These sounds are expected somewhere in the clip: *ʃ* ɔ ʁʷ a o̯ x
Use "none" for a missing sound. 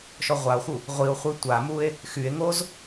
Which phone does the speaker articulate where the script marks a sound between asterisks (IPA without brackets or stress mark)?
ʃ